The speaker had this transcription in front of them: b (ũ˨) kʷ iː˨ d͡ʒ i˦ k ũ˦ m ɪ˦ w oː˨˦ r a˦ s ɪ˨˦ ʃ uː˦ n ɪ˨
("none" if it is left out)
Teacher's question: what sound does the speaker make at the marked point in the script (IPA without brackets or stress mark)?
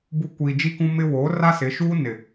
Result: u˨